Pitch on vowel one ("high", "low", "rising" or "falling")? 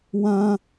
high